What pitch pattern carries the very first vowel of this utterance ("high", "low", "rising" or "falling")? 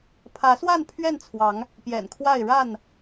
rising